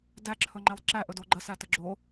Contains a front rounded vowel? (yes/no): no